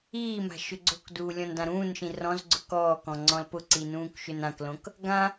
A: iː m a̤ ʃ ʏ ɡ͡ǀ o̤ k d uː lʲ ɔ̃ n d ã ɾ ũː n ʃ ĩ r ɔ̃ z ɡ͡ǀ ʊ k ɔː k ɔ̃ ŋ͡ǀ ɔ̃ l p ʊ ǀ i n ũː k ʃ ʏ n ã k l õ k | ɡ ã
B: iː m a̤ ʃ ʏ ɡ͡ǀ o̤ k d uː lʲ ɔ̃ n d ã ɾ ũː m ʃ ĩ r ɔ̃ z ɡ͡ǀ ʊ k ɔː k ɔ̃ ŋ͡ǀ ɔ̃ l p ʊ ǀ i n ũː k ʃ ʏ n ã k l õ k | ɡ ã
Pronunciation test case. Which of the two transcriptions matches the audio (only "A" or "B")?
A